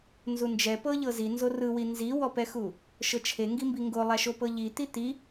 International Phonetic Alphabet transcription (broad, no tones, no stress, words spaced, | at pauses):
nzund͡ʒɛ pɤʎɤzi nzorɯwi nziwɔpɛxu | ʃɤt͡ʃʰeŋɡimbi ŋɡolˠaʃo pɤʎi t̪it̪i